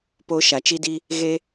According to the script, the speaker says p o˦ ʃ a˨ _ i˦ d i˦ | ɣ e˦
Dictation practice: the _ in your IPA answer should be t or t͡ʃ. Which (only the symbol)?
t͡ʃ